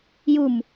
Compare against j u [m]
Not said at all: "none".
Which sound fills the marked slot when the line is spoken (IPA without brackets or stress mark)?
m